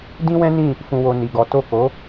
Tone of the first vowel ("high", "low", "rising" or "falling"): high